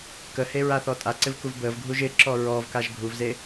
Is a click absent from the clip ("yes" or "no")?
no